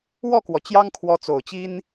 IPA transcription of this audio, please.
w ɔ˥˩ k w ɔ˩ t͡ɕ j ɑ˥ ŋ kʰ w ɔ˧˥ t͡s o˨˩ ʊ̯ t͡ɕ i˥ n

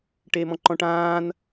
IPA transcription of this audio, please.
ʈ eː m ɔ̃ ǃ ɔ̃ ʈ ãː n

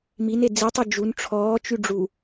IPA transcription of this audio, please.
m i n e d͡z i tˤ y d͡ʒ u n ʈ͡ʂʰ ɔː t͡ʃ y ɖ͡ʐ u

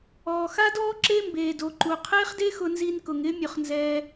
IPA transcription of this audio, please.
ɔː˨ x a˦ d ɔː˦ ǁ e˦ m b eː˨ d o˨ ǃ u˨ qʰ eː˦ χ d e˦ x ʊ˧ n z i˧ n k ʊ˨ ŋ ɪː˦ mʲ ʊ˧ χ n z ɛː˦

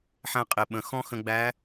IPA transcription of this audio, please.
ħ æ̃˧ qʼ e˩ ɓ ə̃˩ x ɔ̃˥ x ə̃˧ ɡ͡b æ˧˥

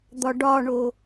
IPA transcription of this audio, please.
d̪ ɒ ɖ ɒ ɳ o

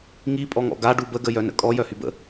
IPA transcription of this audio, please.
ŋ i pʼ ɔ ŋ ɔ̰ ɡ a ɖ u b ə ɡ ə j œ n ə̰ kʼ ɔ j œ h y b ə̰

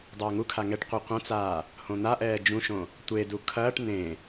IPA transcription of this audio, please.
dˤ ɐː ŋ u kʰ a ŋ ɛ ʈ qʷ ɨ qʷ ɐ̃ t͡s aː | h õ n̪ a ʔ ɛː d͡ʒ ũ ʃ õ | tʷ e d u kʰ ɐː ʈ n ẽ

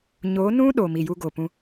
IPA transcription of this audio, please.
ɲ o˨˦ n ũ˦ ɗ o˨ m i˨ j u˧ ɡ o˨ p ũ˧

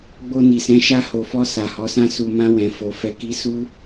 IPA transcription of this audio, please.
ɡ͡b o˧ n i˨ s ɛ̃˨˦ ʃ a˧ h o˨ f ɔ˧ s a˨ h ɔ˨˦ s ã˦ s u˧ m ã˧ w ɛ̃˨ f o˨ f ɛ˨ k i˨˦ s u˦

